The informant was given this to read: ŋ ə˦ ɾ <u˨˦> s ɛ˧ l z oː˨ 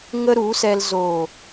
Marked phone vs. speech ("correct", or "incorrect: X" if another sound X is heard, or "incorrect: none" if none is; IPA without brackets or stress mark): correct